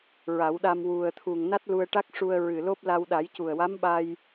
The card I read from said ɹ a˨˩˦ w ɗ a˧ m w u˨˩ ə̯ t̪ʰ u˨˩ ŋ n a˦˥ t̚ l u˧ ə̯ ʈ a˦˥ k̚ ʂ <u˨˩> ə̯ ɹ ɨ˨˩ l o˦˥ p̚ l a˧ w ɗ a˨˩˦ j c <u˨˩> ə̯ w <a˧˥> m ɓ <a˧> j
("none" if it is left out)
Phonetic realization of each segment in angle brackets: u˧, u˨˩, a˧˥, a˧

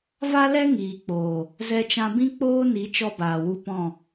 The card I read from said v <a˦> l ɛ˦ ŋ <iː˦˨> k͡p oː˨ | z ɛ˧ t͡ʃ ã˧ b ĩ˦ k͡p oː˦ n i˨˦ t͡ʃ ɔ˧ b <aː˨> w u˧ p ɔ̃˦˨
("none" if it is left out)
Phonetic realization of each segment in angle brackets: a˦, iː˨, aː˨

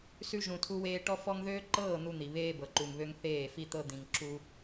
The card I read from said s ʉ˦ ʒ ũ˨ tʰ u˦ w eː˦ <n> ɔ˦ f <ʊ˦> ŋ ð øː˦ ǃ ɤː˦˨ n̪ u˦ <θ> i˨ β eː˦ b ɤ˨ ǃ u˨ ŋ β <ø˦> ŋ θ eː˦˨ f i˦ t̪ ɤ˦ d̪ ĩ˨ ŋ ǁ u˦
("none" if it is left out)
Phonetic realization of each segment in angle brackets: ʈ, ɔ˦, n̪, ø˦

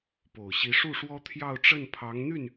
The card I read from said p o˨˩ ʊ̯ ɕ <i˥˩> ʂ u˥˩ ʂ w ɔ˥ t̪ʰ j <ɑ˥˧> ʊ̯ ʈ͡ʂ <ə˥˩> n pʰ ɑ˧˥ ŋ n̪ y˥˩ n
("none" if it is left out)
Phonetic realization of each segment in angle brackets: i˧˥, ɑ˥˧, ə˥˩

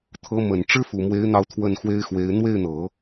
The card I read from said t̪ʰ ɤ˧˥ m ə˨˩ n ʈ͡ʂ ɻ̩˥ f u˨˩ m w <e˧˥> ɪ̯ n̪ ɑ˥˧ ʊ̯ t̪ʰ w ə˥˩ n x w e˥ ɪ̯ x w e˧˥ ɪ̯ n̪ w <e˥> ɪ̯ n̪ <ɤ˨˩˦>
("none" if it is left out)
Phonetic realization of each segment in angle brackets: e˧˥, e˥˩, ɤ˨˩˦

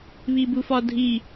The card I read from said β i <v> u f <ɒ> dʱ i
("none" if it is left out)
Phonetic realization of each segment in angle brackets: b, ɒ

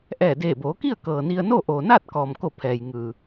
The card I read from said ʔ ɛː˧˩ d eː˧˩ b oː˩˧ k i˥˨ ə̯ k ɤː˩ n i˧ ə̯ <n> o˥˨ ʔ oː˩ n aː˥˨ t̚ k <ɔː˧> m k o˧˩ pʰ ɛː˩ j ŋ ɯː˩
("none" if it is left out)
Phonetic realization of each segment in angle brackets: n, ɔː˩

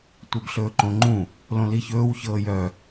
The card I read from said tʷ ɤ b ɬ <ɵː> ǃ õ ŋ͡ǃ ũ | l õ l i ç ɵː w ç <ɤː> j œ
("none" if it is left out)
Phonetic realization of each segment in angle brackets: ɵː, ɤː

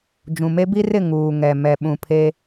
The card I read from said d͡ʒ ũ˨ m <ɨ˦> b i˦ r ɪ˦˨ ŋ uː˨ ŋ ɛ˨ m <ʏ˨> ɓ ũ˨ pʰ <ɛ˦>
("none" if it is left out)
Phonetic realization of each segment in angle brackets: e˦, ɛ˨, e˦

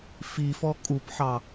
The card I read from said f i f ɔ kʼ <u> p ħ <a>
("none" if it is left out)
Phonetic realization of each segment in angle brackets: u, ɑ

